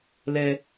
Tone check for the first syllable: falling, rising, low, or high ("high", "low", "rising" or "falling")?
high